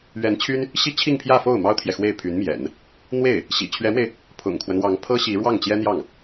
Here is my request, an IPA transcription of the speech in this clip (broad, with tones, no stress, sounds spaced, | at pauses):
ɥ ɛ˧˥ n t͡ɕʰ y˥ n | ɕ i˥ t͡ɕʰ i˥˧ ŋ pʰ j ä˥˧ f o˥˩ ʊ̯ m ɑ˥ ʊ̯ t̪ʰ j ɛ˨ x w e˥˩ ɪ̯ pʰ y˧˥ n m j ɛ̰˨˩˦ n | n̪ w e˥˩ ɪ̯ | ɕ ḭ˨˩ t͡ɕʰ ɥ ɛ˧˥ m w e˧ ɪ̯ | pʰ ʊ̰˨˩ ŋ kʰ w ə˦ n w ɑ˧˥ ŋ pʰ ɤ˥ ɕ i˧˥ ɻ w ɑ˥˩ ŋ t͡ɕ j ɛ˥ n̪ j ɑ˥˩ ŋ